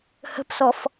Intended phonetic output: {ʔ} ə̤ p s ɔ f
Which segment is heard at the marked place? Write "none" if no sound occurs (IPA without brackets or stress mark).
h